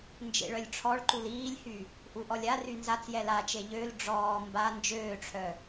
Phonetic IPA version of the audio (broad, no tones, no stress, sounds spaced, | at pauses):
n d͡ʒ ḛ ɭ œ lʲ ʈ͡ʂʰ ɔ ɭ ǃ u l iː lʲ h y | ʔ u ʔ ɔ lʲ a r y n z a t͡s j ɛ l a t͡ʃ e ʎ ø l ɖ͡ʐ ɔː m b a n d͡ʒ øː ʈ͡ʂʰ œ